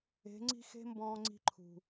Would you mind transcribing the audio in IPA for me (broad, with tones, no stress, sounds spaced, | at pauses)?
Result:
e̤˨˦ ŋ͡ǀ i̤˦ x e̤˦ m b ɔ̃ː˧ ŋ͡ǀ i̤˧ ǃʰ ṳ˨